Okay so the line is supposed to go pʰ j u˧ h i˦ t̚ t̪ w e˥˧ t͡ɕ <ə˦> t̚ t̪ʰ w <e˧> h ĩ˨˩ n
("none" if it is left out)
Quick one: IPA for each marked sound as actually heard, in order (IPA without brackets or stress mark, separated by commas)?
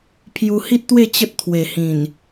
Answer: ə˦, e˨˩